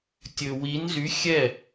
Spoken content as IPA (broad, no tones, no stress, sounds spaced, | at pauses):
tʲ ɵ w i n z y xʲ ɛ